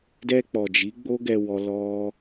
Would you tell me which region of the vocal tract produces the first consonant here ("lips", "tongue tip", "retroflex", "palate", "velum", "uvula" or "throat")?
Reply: tongue tip